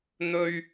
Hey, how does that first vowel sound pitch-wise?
high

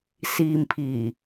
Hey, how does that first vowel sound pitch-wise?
low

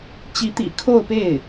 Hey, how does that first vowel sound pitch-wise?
rising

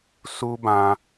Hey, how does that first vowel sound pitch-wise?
high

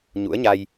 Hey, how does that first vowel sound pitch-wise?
rising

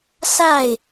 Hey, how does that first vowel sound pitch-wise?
falling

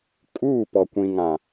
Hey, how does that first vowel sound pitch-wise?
falling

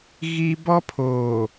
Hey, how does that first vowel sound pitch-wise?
high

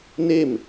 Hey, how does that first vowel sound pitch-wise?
falling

